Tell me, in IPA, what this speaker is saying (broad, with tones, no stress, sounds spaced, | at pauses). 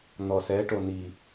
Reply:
n̪ ɔ˨ s ɛ˨˦ ʈ o˨ n i˨